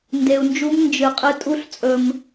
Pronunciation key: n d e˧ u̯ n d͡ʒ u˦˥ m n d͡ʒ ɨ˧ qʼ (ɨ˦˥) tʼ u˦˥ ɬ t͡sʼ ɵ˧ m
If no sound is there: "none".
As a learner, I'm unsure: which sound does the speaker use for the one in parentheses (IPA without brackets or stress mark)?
ɨ˦˥